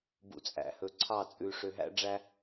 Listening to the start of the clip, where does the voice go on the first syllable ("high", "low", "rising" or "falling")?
low